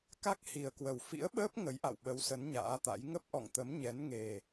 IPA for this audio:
k a˦˥ k̚ h i˨˩ ə̯ k w ə˨˩ w f ḭ˧˥ ə̯ ɓ əː˦˥ p̚ ŋ ə˨˦ j ʔ a̰˧˨ w ɓ ə˨˦ w s ə˨˦ n ɲ a̰ː˧˥ t̪ a̰˧˥ j ŋ ə˦˥ p̚ ʔ ɔ̰˧˨ ŋ t̪ ə˨˦ m ɲ ɛ˨˦ n ŋ e˨˩

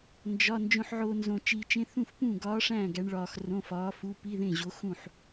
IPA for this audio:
n d͡ʒ ɒ˧˥˧ n d͡ʒ õ˧ ħ ʕ o˧ n z õ˧ t͡ʃ iː˧ t͡ʃ ẽ˧˥˧ θ ũ˥˨ f p ũ˥˨ ɡ ɒː˧˥ ʂ æ̃˥˨ ɡ æ˧˥ ɳ ɭ ɒː˧ x r õ˧˥˧ f ɒː˧˥ f u˧˥˧ p i˧˥˧ ð ẽ˥˨ ʑ o˧˥ x ũ˥˨ ħ

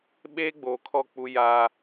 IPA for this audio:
ɓ eː˦ ɡ͡b oː˨ kʰ ɔ˦˨ k͡p u˦ j a˦

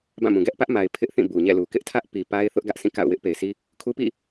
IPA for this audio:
b ã˦˨ m ũ˨ ɡ ɛ˦ ʔ p ä˦ ʔ m a˨ ɪ̯ pʰ ɪ˦ ʔ θ ĩ˦˨ b u˨ ɲ ɛ̰˦˨ l u˨ k ɪ˦ ʔ tʰ ä˦ ʔ p i˨ p a˦ ɪ̯ θ ʊ˦ ʔ ɡ ä˦ ʔ s ĩ˦˨ k a̰˦˨ ʊ̯ w ɪ˦ ʔ p e˨ ɪ̯ s i˦ | kʰ u˦ p ḭ˦˨

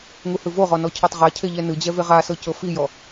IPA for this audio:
ŋ u h ɯ v o ʁ ɔ n ɔ cʰ ɤ tˤ ʁ a cʰ e ʎ ɛ n ɯ d͡ʑ ɛ v e ʁ a s ɤ c ɤ f i j ɔ

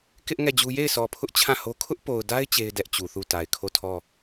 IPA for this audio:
k ɪ˦ ʔ ŋ ɛ˦˨ d͡ʑ u˦ j e˦˨ ɪ̯ sʰ ɔ˨ pʰ ʊ˦ ʔ t͡ɕʰ ã˦˨ h o˦ kʰ ʊ˦ ʔ p o˨ ʊ̯ d a˦ ɪ̯ t͡ɕ e˦ ɪ̯ d ɛ˦ ʔ t͡ɕ u˨ θ u˦˨ t a˨ ɪ̯ kʰ o˦˨ tʰ ɔ˦˨

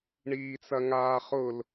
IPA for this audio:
ɳ iː t͡s ɐ ŋ aː χ ʊ l

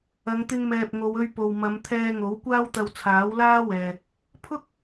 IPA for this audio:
ɐ˨˧ ŋ t̪ ɪ˧ ŋ m ɛː˨ p̚ ŋ o˨˧ w ɵ˧ ɥ p o˨ w m ɐ˨˧ m t̪ʰ ɛː˧ ŋ o˨˥ w kʷ aː˥ w t̪ ɐ˧ w t͡sʰ aː˨˥ w l aː˥ w ɛː˨ | pʰ ʊ˥ k̚

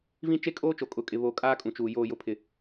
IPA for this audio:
v ĩ˦ t͡ʃ e˦ kʼ oː˦ t͡ʃ o˨ kʼ ʊ˨ kʼ ɪ˨ β o˨ kʼ aː˦ kʼ ũ˨ t͡ʃ uː˨ j oː˨ j ʊ˨ pʰ ɪ˨

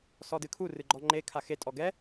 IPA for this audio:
s ɔ d ɨ kʰ u r ɨ ɡ͡ǃ ɔ ŋ͡ǃ e kʰ a x e tʼ ɔ ɡ ɛ

